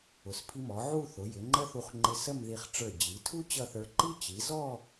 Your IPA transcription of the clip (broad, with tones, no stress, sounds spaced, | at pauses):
ʊ˩˧ s pʰ i˧ m ɔ˩˧ ʕ u˥˧ θ ʊ˩˧ j ɪ˩˧ ŋ͡ǃ ə˥ θ u˧ χ ŋ͡ǃ ɪ˧ s ə˥˧ m ð i˧˩ χ ʈ͡ʂ ə˞˧˩ d͡ʑ i˩˧ tʰ u˥ t͡ɕ ʌ˥˧ θ ə˞˧ ǃ i˥ t͡ɕ i˩˧ z ɔ˥˧